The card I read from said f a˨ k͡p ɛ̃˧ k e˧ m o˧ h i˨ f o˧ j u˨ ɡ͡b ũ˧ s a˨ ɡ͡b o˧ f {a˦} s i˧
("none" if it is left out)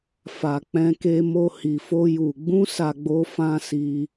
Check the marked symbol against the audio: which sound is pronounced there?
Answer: ã˦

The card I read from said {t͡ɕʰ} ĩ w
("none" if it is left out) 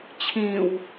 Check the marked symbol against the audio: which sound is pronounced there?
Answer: t͡ɕʰ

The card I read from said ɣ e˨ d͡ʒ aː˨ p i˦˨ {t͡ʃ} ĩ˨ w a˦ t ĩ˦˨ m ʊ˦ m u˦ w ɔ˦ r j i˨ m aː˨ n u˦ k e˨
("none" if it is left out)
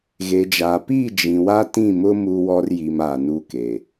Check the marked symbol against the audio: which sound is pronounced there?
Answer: d͡ʒ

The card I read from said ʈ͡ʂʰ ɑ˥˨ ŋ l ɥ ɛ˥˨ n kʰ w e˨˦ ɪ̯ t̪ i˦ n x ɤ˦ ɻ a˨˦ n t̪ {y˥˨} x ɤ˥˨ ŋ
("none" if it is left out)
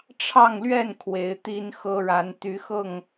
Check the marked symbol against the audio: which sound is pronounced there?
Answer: y˨˦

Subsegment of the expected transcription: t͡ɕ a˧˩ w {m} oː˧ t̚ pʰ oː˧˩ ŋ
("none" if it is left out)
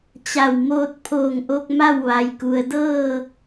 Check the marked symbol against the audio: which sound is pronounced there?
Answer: m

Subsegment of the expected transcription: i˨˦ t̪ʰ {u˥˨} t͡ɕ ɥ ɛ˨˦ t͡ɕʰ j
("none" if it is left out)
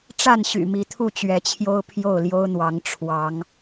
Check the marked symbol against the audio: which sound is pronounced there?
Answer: u˥˨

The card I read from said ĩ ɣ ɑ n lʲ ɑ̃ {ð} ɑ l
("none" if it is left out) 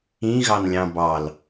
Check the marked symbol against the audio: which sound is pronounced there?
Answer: b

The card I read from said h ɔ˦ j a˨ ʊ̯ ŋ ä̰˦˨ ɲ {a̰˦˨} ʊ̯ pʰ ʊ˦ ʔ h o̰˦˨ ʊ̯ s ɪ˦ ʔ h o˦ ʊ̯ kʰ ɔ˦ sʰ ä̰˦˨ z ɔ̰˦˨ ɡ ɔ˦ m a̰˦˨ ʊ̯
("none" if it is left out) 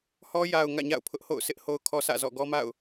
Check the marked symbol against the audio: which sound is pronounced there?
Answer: a̰˦˨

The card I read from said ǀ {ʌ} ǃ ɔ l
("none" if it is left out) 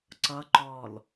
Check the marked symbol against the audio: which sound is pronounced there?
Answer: ʌ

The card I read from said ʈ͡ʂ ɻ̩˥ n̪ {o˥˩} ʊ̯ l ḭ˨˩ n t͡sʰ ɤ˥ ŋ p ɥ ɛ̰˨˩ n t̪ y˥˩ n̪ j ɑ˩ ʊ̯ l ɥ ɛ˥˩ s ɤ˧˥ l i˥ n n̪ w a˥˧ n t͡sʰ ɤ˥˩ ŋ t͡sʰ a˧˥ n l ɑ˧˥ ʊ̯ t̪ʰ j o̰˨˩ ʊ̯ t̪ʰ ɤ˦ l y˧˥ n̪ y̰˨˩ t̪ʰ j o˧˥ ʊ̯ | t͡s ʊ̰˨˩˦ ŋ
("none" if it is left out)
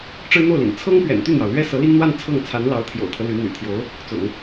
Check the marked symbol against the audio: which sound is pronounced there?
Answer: o˥˩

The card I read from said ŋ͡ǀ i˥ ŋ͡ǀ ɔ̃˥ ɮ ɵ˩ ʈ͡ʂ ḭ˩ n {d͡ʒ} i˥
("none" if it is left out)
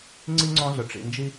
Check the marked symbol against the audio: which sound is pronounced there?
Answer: d͡ʒ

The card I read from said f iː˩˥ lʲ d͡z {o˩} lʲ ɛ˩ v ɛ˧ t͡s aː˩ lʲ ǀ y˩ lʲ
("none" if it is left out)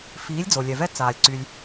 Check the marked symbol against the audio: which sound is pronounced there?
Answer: o˩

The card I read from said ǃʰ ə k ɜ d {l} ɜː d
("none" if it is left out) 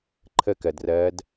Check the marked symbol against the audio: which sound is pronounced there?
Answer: r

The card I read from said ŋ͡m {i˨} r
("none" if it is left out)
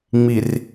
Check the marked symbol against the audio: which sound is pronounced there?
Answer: i˨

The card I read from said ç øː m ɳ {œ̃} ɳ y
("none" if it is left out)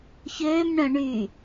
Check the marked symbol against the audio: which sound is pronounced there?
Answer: œ̃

